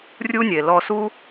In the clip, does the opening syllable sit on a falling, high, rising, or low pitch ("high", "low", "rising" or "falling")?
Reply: high